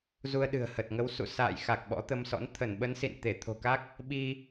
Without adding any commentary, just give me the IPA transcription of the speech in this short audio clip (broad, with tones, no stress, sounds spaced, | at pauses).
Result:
z u˧ ə̯ ɗ ɨ̤˨˩ ə̯ h ə˨˩ t̚ ŋ ə˨˦ w s ṵ˧˨ s a̰ː˧˨ j x a˨˩ k̚ ɓ ɔ̰˧˥ t̪ ə˧ m s ɔ̰˧˥ n t̪ʰ ə˧˩ n ɓ ə˨˦ n s ḭ˧˨ n t̪ e˧˩ t̪ʰ o̤˨˩ k a˦˥ k̚ | ɓ i˧